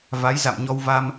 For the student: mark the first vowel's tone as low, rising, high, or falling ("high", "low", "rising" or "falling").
rising